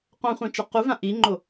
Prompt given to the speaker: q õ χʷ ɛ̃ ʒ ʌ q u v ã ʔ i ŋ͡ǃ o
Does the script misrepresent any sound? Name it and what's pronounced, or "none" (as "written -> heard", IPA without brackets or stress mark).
ʒ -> t͡ʃ